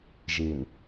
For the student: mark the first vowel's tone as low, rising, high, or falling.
low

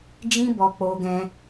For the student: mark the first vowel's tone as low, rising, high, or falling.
high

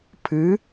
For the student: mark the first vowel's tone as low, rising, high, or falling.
rising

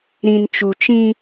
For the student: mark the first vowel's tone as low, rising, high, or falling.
low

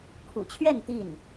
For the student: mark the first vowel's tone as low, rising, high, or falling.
low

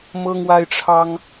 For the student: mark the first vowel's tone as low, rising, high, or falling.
high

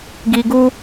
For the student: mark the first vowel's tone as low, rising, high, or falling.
low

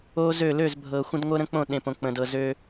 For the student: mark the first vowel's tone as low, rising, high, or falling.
high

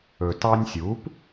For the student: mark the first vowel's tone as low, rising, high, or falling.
low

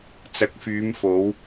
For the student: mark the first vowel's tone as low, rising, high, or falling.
rising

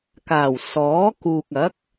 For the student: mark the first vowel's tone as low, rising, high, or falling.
low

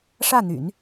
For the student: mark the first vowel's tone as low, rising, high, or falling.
falling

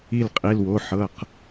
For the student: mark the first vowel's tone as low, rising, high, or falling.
falling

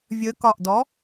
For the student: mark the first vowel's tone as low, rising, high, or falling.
rising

